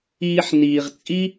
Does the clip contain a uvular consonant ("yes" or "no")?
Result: yes